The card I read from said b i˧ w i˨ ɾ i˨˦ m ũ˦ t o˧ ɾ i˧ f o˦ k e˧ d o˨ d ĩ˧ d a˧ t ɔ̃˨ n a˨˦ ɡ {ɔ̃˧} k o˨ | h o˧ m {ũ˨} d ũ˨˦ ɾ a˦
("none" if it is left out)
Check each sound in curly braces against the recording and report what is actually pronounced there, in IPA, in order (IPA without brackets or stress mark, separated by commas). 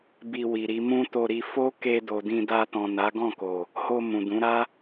ɔ̃˦˨, ũ˨